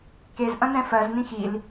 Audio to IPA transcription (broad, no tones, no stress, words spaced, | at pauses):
kez ʔɐ̃nɛ̃fɜz nĩxil